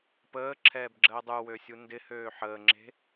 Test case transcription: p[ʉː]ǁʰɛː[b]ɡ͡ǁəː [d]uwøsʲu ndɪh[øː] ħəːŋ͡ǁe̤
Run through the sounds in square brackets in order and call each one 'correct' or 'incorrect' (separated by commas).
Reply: incorrect, correct, incorrect, correct